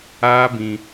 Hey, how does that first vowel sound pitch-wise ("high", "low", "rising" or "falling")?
high